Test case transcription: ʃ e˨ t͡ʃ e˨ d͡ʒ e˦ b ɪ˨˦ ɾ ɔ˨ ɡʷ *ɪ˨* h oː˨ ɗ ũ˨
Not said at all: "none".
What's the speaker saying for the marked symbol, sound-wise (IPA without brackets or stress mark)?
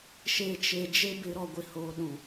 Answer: ɪ˨